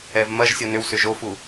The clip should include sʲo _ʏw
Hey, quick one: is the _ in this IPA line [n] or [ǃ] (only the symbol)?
n